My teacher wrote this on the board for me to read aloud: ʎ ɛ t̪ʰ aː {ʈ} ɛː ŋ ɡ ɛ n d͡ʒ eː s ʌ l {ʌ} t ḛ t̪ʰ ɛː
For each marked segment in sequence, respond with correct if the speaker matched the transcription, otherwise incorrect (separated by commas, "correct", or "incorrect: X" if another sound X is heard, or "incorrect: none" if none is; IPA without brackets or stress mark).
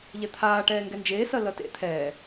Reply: correct, correct